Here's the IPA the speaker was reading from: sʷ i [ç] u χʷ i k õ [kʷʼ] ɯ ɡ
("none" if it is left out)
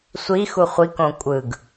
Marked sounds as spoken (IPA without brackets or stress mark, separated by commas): x, kʷʼ